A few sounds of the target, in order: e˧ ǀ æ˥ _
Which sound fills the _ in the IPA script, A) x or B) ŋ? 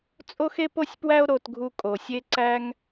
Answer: B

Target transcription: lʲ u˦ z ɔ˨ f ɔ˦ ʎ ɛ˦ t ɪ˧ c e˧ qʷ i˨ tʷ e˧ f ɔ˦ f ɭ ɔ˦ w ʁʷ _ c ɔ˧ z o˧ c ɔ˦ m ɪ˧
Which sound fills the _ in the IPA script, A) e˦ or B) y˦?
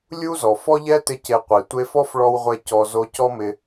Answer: A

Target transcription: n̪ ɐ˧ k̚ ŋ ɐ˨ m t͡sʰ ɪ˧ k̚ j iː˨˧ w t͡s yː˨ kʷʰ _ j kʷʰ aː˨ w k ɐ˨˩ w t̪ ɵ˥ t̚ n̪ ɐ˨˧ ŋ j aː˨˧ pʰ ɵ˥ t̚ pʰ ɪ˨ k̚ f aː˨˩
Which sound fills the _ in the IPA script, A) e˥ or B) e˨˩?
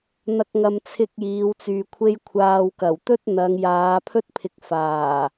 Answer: A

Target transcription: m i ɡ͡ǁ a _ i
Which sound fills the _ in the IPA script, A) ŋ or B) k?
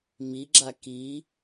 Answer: B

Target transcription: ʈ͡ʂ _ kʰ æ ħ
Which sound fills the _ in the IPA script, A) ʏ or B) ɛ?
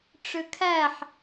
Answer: A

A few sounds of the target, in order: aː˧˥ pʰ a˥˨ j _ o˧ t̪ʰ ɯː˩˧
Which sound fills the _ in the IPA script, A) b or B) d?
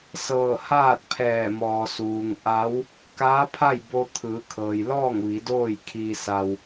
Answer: A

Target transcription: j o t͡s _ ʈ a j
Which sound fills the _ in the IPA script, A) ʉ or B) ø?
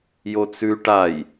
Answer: A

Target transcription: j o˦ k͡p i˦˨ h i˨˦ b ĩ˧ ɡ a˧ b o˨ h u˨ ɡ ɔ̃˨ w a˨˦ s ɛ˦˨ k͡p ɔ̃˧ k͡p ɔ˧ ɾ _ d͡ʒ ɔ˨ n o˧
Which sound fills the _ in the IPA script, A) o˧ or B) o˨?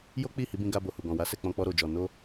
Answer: B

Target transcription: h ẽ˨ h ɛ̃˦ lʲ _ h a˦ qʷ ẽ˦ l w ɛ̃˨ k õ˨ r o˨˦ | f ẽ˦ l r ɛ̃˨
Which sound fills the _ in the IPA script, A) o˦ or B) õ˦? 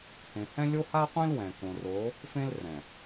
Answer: A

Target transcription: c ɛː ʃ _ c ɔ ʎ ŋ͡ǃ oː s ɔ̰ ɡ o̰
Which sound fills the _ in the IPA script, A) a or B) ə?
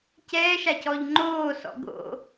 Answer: A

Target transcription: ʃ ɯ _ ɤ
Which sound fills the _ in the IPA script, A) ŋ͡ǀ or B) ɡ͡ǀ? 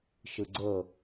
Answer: B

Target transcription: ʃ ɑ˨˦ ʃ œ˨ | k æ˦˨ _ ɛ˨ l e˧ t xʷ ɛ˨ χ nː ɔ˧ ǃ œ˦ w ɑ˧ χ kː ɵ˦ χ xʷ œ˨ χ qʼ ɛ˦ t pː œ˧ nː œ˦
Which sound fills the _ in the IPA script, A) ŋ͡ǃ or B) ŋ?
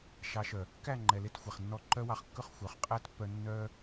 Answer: A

